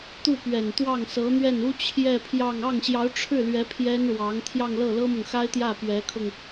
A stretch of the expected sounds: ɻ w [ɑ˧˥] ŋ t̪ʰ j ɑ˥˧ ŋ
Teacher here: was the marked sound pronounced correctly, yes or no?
yes